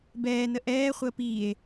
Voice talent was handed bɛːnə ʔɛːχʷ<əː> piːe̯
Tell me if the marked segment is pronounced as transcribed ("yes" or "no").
yes